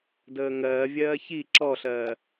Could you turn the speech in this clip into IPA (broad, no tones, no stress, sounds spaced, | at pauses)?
d əː ŋ ɜː vʲ ɜː ç i ǁ ɔ ɬ ɜː